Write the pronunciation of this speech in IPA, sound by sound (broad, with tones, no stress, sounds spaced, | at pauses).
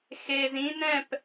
x e˧ z ĩ˥ n ɛ̃˥˧ p